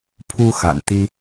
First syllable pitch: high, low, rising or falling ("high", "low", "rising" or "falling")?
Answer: high